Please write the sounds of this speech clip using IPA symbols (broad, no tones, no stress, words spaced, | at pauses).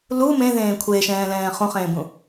lu mẽðẽː kʷʰeʃɛ̃ːlɛ̃ː χũχẽːbũ